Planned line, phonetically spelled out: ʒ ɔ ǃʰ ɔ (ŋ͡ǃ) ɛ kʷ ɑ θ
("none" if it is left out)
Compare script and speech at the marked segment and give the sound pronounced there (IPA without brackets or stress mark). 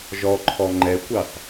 ŋ͡ǃ